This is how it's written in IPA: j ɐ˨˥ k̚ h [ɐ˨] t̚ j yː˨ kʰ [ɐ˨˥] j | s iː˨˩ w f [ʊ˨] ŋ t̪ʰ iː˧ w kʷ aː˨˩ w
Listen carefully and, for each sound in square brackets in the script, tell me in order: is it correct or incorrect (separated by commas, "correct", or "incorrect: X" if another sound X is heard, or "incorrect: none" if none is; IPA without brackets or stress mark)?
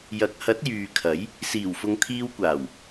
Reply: incorrect: ɐ˨˥, correct, correct